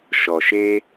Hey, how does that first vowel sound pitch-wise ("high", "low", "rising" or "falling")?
low